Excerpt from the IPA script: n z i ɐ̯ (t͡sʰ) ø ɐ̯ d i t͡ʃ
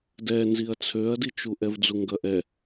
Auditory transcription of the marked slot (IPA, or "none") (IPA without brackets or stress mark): t͡sʰ